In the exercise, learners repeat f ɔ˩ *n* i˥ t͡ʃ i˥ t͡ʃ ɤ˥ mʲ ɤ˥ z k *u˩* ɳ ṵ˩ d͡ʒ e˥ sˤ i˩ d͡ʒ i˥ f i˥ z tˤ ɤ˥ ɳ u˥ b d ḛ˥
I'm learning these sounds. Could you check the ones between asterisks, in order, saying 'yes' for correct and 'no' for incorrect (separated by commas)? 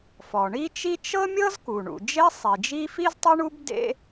no, yes